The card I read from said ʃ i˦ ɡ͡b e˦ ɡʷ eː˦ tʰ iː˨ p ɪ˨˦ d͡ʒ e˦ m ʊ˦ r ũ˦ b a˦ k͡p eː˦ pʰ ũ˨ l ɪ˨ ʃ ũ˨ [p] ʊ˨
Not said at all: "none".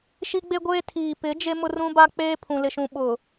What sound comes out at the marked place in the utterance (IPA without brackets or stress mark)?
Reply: ɓ